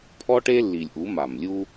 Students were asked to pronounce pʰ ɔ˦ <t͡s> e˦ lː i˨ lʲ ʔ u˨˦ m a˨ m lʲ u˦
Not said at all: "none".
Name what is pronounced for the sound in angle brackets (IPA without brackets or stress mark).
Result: ʈ